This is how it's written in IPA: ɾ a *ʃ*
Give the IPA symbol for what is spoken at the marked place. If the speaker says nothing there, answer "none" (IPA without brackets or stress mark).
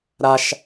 ʃ